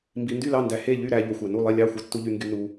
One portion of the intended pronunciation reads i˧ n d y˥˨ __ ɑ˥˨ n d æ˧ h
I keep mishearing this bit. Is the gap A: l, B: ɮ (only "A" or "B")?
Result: A